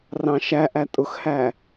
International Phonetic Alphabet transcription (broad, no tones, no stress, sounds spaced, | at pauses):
r ɑ̃ ʃ æ ʔ æ tʼ ʊ x h æ